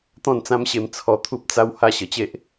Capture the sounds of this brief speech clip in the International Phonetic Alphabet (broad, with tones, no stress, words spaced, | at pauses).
t̪ɔ̃˥˧nt͡sã˦mɕe˧m t͡sʰɔ˧t̪ʰu˦p̚ t͡sa˦w ha˥˧ɕə˨˩t͡ɕe˦ʔ